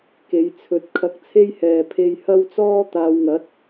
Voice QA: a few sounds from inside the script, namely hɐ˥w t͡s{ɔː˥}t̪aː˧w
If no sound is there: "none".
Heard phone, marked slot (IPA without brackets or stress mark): ɔː˥